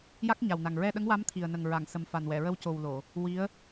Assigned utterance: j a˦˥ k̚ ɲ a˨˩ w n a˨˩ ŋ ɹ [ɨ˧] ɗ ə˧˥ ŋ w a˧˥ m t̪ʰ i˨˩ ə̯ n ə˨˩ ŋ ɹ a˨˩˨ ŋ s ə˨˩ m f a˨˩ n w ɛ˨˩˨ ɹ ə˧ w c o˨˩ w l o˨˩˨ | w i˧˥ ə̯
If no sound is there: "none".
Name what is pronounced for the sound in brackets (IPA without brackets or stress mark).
ɛ˧